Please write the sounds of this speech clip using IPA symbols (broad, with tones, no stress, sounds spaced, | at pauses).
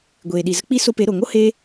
ɡʷ eː˨ ɗ i˨ z ə˦ k͡p i˦ s o˧ p e˨˦ ɾ o˨ ŋ o˦ h eː˦